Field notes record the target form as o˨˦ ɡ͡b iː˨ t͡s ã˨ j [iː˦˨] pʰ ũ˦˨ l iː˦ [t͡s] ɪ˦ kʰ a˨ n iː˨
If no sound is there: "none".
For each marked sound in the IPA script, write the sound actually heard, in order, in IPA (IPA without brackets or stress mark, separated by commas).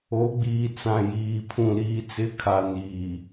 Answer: iː˨, t͡s